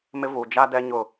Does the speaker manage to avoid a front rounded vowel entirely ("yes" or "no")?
yes